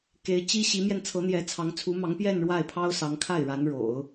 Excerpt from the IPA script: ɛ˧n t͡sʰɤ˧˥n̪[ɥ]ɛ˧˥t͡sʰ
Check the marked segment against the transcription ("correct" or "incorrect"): incorrect